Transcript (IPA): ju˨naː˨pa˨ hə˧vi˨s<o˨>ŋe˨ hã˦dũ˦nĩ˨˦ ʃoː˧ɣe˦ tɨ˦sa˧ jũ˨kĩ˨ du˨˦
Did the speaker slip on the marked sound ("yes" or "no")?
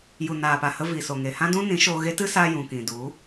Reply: no